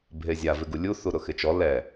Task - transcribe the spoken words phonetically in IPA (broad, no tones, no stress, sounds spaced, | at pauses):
bʱ e zʲ a v ɪ ɡ u lʲ u θ u ɾ ʊ x ɪ t͡ʃ ɔ l ɛ